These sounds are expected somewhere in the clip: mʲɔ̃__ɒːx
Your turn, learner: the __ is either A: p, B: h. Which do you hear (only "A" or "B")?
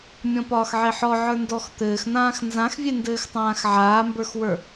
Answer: A